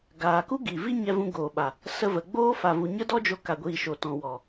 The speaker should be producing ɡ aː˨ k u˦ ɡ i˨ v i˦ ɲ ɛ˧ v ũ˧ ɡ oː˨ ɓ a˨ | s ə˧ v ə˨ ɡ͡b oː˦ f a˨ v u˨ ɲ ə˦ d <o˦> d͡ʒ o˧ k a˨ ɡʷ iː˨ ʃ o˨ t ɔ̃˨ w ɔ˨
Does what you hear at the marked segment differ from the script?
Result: yes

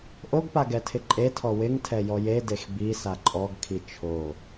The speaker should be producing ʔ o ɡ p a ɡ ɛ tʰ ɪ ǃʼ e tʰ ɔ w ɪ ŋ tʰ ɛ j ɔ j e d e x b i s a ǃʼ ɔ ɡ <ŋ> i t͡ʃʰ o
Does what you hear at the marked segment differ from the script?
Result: yes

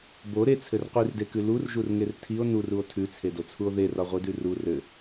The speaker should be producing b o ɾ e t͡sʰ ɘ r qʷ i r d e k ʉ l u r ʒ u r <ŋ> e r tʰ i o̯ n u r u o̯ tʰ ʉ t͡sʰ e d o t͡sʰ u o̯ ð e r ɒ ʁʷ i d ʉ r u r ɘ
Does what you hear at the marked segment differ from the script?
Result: no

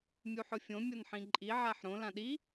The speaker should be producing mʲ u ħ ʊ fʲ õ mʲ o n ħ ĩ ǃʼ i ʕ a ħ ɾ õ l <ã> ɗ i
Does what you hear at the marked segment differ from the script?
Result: no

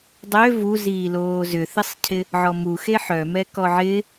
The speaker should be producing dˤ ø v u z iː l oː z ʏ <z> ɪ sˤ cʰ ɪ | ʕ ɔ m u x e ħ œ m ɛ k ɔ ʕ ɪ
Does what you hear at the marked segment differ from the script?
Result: yes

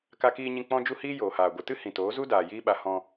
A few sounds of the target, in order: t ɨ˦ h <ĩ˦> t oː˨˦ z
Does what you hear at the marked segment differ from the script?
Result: yes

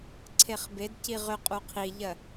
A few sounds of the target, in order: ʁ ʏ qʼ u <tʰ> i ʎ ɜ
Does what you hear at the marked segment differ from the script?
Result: yes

